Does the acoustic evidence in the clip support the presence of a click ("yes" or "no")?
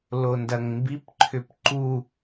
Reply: yes